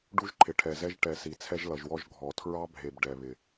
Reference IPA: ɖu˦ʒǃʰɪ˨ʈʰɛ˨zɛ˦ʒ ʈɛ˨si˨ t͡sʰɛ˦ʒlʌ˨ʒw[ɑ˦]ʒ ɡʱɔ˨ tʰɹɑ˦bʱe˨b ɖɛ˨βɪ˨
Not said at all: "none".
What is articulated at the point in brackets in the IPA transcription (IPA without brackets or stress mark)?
ɔ˦